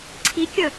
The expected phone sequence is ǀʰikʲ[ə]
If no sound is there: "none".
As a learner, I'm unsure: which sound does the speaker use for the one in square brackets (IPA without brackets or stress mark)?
ə